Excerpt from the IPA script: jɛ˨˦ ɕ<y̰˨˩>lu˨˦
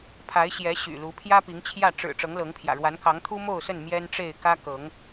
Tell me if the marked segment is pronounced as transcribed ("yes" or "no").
yes